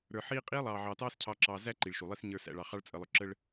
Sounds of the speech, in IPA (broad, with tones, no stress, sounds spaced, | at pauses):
ɾ ə˞˨ ħ iː˦ qʼ iː˦ lˠ ɑː˨ ʕ ɑː˨ t ɑː˦ s cʰ ɑ˨ ǁ ɑː˨ z æ˦ ǃ i˨ ɭ ʃ u˨ lˠ i˦ s ɲ ə˞˨ s æ̰˨ ɭ ɑ˨ χ ɑ˦ ɭ t͡sʼ ə˨ lˠ ʊ˨ ǁ ə˦ ɭ